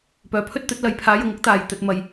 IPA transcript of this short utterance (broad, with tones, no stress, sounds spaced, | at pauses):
p œː˨ pʰ ɵ˥ t̚ t̪ ɵ˨˥ t̚ l ɐ˨˥ j pʰ aː˨˥ j ʊ˨˥ ŋ ʊ˥ k̚ t̪ aː˨ j t̪ ɵ˧ t̚ m ɐ˧ j